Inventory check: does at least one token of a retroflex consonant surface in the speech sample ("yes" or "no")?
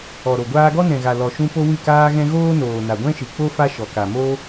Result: no